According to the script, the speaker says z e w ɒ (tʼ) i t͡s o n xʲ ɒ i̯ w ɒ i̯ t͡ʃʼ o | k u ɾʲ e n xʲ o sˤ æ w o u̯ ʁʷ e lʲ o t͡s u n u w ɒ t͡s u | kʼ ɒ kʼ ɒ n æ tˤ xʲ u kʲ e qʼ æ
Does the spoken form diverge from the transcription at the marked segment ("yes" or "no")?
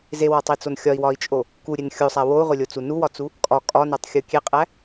yes